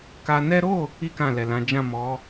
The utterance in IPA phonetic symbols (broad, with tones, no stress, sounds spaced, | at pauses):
k a˧ n ɛ˦ ɾ o˦˨ | i˦ k ã˦˨ l ɛ˨ l ã˨˦ d͡ʒ ã˦˨ m ɔ˨˦